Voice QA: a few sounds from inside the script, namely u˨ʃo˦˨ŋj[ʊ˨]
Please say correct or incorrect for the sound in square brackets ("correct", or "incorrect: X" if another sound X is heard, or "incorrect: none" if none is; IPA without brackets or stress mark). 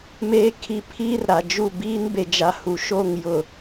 correct